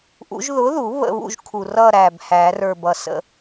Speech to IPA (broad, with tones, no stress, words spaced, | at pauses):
ʔṵ˨˥ʒ ðʊ˨˥ðu˨˩˦ βə̰˥˨βṵ˥˨ʒ kʰu˨˩rʌ˥˨ ɾæ˨˩bhæ˨˩˦rə˞˨˩bʌ˨˩ sə̰˥˨